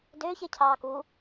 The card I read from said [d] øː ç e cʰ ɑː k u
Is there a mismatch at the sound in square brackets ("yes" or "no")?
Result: no